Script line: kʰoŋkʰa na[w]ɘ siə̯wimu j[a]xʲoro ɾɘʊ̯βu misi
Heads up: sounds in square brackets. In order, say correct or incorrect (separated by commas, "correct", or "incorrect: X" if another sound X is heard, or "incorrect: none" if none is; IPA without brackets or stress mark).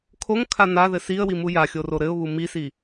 incorrect: ð, correct